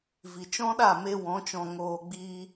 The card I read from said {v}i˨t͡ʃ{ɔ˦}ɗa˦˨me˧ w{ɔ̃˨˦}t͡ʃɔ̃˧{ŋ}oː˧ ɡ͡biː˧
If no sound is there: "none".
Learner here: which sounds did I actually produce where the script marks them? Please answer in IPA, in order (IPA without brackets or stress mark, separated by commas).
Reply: v, ɔ̃˦, ɔ̃˨˦, ŋ